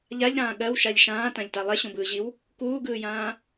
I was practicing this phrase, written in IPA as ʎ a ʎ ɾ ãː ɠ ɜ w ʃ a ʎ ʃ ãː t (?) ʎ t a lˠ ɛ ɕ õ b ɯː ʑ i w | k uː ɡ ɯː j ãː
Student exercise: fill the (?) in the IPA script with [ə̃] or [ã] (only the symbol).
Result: ã